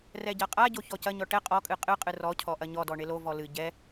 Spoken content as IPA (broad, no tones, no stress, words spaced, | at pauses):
rɛɟaqʼaɟo çɔcɐɲɔ ʈɛ qʼɔkʼɨ qʼɨqʼɨ rɔcʰɔ ʔɐɲɔdɔ ɳelovɔ lɨ ɟɛ